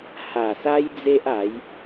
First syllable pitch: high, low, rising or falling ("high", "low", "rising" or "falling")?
low